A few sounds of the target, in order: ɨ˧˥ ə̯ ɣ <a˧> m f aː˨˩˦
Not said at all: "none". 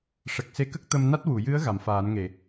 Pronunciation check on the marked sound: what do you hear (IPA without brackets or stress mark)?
a˨˩˨